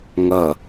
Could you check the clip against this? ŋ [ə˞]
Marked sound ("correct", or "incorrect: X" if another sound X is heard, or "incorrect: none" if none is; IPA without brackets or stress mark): incorrect: ɐ